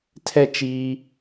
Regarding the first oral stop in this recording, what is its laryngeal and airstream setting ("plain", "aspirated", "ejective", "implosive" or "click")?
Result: aspirated